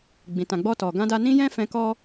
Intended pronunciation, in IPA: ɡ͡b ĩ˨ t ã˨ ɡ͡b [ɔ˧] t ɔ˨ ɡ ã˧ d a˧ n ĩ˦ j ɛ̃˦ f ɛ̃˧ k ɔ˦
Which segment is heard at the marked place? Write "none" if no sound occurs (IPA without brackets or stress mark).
ɔ˧